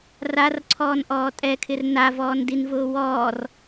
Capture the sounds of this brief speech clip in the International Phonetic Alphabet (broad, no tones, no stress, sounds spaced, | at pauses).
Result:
r a r ǀʰ ɔː n ʔ ɔː tʼ ɛ kʰ ɪ r n a v ɔː n d i n v ʊː w ɔː r